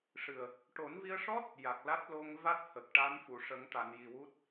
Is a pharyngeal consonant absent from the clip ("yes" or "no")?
yes